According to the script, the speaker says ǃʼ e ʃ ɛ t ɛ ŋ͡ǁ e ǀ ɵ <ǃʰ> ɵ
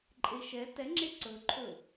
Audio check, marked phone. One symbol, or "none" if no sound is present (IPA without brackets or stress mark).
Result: ǃʰ